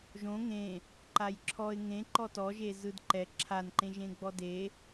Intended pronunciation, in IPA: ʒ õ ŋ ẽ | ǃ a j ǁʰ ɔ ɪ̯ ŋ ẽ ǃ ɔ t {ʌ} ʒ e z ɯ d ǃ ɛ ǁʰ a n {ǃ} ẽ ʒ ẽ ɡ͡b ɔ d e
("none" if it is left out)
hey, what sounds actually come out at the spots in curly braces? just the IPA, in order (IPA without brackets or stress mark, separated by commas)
ɔ, ǃ